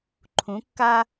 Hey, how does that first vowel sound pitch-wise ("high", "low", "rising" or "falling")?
rising